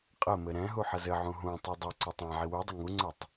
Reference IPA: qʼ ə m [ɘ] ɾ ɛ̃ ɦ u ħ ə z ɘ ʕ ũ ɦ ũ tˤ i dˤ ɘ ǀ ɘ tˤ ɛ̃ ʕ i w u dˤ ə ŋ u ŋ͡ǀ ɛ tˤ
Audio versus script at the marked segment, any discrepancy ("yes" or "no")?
no